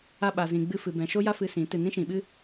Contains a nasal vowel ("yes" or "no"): yes